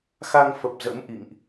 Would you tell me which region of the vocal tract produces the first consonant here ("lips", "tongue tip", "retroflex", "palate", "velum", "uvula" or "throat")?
velum